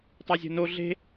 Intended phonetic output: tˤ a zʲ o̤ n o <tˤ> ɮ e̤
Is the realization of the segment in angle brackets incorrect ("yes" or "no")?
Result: yes